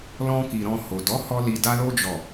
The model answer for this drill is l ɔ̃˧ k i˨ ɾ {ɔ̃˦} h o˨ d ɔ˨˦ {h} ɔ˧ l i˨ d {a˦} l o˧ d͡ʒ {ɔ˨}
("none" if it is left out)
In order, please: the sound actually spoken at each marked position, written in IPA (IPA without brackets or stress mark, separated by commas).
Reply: ɔ̃˨, h, a˧, ɔ˨